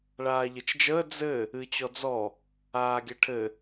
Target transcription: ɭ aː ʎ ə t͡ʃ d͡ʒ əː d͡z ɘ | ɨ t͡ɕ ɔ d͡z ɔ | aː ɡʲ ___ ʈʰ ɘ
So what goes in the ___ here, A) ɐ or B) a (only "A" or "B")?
A